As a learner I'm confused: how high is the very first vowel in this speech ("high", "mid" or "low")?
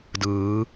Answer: high